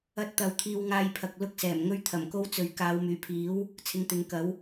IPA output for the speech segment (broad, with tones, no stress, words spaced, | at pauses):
ɐ˧t̚t̪ɐ˨˧w t̪ʰiː˧wŋaː˧jpʰɐ˨k̚ lʊ˥k̚sɛː˨˩mŋɵ˥ɥ t̪ʰɐ˨˩mko˥wt͡sɵ˨ɥ kaː˨˧wmyː˨˩pʰiː˨˥w | t͡sʰɪ˨˧ŋt̪ɪ˨˥ŋkɐ˨˥w